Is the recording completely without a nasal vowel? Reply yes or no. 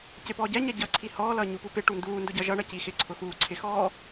yes